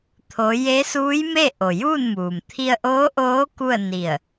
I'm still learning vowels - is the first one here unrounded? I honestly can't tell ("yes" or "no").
no